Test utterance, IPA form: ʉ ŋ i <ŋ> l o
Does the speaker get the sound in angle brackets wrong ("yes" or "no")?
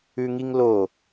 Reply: no